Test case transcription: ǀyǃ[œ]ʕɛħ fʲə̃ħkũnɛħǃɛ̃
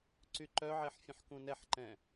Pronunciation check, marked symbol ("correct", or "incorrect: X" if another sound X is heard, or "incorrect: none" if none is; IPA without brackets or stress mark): correct